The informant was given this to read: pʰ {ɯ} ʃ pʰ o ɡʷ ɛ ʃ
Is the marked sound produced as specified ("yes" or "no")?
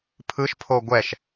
yes